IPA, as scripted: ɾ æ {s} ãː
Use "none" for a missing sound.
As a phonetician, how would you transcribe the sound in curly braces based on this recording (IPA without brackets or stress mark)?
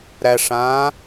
ʂ